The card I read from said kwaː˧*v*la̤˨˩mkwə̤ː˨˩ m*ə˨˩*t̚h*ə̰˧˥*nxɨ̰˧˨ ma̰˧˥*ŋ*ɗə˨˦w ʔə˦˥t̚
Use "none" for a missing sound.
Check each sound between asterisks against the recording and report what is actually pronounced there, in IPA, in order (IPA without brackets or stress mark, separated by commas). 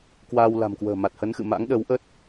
w, a˨˩, ə˨˦, ŋ